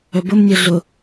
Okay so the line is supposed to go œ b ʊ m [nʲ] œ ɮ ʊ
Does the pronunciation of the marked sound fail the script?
no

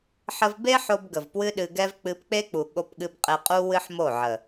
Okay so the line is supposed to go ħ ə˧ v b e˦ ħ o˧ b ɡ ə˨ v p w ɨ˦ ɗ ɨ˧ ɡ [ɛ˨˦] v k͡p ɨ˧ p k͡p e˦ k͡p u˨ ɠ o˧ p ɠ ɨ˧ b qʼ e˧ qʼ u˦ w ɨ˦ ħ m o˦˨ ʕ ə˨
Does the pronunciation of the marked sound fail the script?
yes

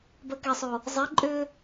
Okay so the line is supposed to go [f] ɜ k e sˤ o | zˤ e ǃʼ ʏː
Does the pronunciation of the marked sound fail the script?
yes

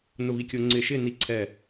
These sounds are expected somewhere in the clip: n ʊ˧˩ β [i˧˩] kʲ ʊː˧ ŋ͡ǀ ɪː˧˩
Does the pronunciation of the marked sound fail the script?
no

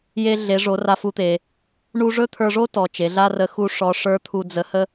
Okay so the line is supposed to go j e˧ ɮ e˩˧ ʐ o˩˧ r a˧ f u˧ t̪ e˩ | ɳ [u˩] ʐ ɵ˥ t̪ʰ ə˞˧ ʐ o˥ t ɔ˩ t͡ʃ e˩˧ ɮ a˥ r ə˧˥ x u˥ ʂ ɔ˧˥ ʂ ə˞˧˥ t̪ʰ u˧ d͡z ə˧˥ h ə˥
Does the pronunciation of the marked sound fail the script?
yes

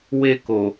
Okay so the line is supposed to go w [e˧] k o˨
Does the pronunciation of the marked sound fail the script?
no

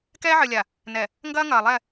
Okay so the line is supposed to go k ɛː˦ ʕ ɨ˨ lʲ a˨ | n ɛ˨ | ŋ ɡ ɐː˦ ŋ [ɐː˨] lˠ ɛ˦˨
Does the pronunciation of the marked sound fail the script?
no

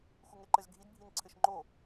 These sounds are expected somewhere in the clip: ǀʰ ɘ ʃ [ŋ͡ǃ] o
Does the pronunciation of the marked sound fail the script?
no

